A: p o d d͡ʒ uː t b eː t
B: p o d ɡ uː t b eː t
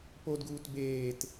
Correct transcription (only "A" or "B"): B